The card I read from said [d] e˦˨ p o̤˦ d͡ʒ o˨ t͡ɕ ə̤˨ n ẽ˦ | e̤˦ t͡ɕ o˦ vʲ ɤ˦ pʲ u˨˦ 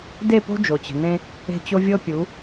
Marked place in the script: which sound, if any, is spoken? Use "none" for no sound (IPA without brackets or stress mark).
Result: d